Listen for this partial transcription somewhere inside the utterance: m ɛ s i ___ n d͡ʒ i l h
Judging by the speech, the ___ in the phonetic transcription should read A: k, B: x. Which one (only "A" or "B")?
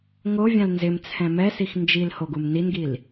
B